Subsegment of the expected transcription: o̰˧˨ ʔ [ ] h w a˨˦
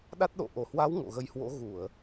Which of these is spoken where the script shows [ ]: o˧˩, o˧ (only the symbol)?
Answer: o˧˩